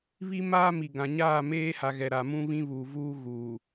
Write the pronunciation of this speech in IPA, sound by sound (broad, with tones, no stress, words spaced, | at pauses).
βi˦maː˦mi˨ɡã˨ ɲaː˦˨meː˦ha˨ɣɛ˨ ɾa˨mũ˦ βĩ˦βuː˨vuː˦ ɣuː˨